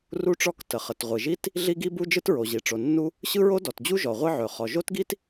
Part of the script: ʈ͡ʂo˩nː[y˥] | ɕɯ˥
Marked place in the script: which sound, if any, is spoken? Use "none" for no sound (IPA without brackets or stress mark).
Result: u˥